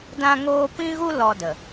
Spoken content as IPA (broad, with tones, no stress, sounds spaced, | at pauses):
d ã˦ ŋ oː˦ p ĩ˦ ɣ u˦ l ɔ˧ d ə˨